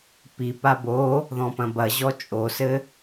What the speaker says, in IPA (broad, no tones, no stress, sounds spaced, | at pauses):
p i p a b o | ð ɔ̃ p ɐ̃ b ɐ ʑ ɔ t͡ʃʼ o s ɘ